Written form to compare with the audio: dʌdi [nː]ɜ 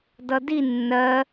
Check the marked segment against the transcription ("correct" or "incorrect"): correct